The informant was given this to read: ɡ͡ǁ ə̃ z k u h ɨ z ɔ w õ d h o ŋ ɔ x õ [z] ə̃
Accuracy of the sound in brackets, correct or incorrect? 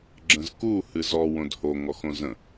correct